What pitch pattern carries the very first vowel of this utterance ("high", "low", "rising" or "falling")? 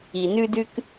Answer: low